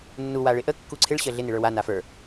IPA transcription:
nː u w a ɭ ɪ ʔ ə kː u ǀʰ ɪ ɭ ɕ ə ɮ ɪ n ɪ ɭ ə˞ w a n a f ə˞

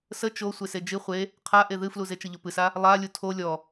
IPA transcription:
s ə t͡ʃ o sʷ e s e d͡ʒ ɨ χʷ e | qʰ a ʔ e ð ɨ f l u z e t͡ʃ ə ʎ o p ɨ s a | lˠ a lʲ u tʰ o lʲ ɔ

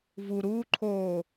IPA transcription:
v u ɾ uː ǃʰ oː

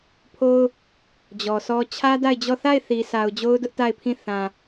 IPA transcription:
pʰ o˦ ʊ̯ | d͡ʑ ɔ˨ sʰ ɔ˦ t͡ɕʰ ä˦ d a˦˨ ɪ̯ d͡ʑ ɔ˦˨ θ a˦˨ ɪ̯ θ i˨ s a˨ ʊ̯ d͡ʑ o˦ ʊ̯ d ʊ˦ ʔ t a˦˨ ɪ̯ pʰ ĩ˦˨ θ ã˨

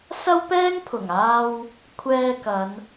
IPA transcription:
s ɐ˥ w p ɛː˥ ŋ pʰ ʊ˨˩ ŋ aː˧ w | kʷʰ ɛː˧ k ɐ˨˧ n

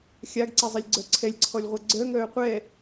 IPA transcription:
xʲ a ɡ ǀ e zˤ i lʲ ɡ͡ǀ œ ǀʰ ɛ lʲ ǀʰ ɔ lʲ ʁʷ ɛ ɡ͡ǀ œ ŋ œː qʷ ɛ

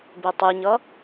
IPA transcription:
b e tˤ ɨ ɲ ʌ

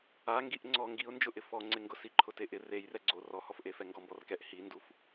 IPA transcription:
a ŋ ɡ i ʔ ŋ͡ǀ ɔ ŋ ɡ i ʊ̯ n d͡ʒ ʊ ʔ ɪ f ɔ ŋ͡ǀ ɪ ŋ ɡ ʊ s i ǃʰ ʊ t e ʔ ɪ r e j r ɛ ɡ͡ǀ o r ɔ h ɔ f ʔ e f ɛ ŋ ɡ ɔ m b ɔ r k ɛ ʔ h i n d u f

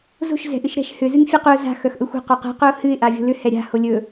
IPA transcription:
z o̤ ʃ z ɛ̤ ʔ ɨ ʃ ɾ ɛ̤ ʃ h ʏ z ɨ ŋ fʲ ɛ q ʏ ʊ̯ z a̤ x œ x ʔ ɵ xʷ ɛ̤ q œ q ɛ̤ q ɵ ʊ̯ h ɨ ɪ̯ ʔ a vʲ o̤ l ʏ h ɛ ɾʲ a̤ h o lʲ ɵ

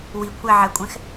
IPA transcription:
w i kʷʰ ɛ ʕ ɛ kʷʼ ɛ̃ x

